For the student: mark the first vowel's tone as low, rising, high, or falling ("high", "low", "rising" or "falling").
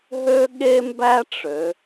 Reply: high